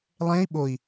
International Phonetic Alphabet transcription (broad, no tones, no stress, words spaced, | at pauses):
lˠẽi̯ ɓoi̯